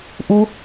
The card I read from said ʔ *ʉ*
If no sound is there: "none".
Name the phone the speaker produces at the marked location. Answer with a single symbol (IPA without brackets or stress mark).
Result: u